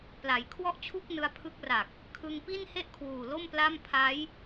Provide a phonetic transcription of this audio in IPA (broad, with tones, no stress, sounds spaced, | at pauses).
p l a˩˦ j kʰ w ɔ˥˩ ʔ t͡ɕʰ u˥˩ k̚ n ɯ˧ a̯ pʰ ɯ˦˥ k̚ r a˨˩ k̚ | kʰ ɯ˧ ŋ p i˥˩ n h e˥˩ ʔ kʰ w uː˨˩ l o˥˩ m p l a˥˩ m pʰ a˦˥ j